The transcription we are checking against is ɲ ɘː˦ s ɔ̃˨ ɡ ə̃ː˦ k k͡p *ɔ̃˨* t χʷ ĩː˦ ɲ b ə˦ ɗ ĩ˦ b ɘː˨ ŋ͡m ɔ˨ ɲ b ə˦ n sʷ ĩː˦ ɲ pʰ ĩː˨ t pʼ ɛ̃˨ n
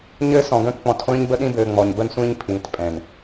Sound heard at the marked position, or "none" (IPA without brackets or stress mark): ɔ̃˨